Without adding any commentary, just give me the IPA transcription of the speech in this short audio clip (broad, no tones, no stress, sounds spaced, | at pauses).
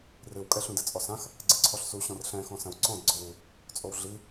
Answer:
r ɨ w kʼ ɛ ɬ ũ d ɘ t͡sʼ ɔ s ã x | ɡ͡ǀ ɨ ǀʰ ɔ ɬ s u ɕ ɔ̃ r ɬ ɛ̃ x ɔ̃ s ɐ̃ w ǀ ɔ̃ d ɡ͡ǀ ɔ w u | t͡sʼ o w ɮ i